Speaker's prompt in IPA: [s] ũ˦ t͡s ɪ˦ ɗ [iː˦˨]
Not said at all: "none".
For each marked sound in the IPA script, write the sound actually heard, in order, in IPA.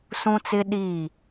s, iː˦˨

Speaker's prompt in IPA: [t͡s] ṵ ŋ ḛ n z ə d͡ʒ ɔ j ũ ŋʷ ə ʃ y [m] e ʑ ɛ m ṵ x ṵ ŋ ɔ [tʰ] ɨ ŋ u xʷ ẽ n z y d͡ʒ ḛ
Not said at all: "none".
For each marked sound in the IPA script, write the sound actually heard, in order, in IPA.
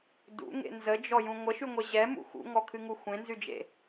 d, ŋʷ, kʰ

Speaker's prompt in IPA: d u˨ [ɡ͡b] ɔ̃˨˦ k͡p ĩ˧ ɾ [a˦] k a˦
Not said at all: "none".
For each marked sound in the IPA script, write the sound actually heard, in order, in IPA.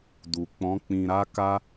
k͡p, a˦

